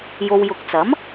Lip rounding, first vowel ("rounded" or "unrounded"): rounded